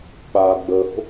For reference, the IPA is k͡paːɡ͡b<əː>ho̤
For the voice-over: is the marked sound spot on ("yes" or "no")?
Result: yes